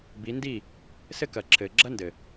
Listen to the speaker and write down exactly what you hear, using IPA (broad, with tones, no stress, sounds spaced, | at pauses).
b i˨˦ n d i˦˨ | s ɘ˦ k ɐ˨ ǁʰ ɘː˨ ɡ͡ǁ ɐ˦ n d ɘ˨